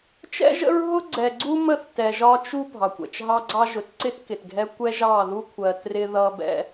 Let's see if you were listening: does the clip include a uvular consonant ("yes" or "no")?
no